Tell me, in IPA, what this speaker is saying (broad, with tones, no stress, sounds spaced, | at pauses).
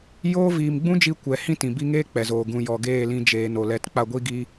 j oː˦ v iː˨ m ɡ͡b ũ˦ d͡ʒ i˧ kʷ ɛ˨ h ĩ˦ t ĩ˨ b i˧ ŋ eː˦ k͡p ɛ˨ z oː˨ ɡ ũ˨ j ɔ˨ ɡ eː˦˨ l ĩ˧ d͡ʒ eː˨ n o˨ l ɛ˨˦ t k͡p a˦˨ ɡʷ i˦ ɡ iː˦